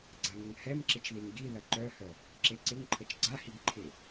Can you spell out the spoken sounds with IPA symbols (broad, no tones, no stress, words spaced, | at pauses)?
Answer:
ɡ͡ǀaŋəŋhɛmǁɪt͡ʃ ðiŋɡiðɐ ǃœhœ | ǁeǀɪŋǃʰət͡ʃ ɡ͡ǀahiɡ ǃʰɪ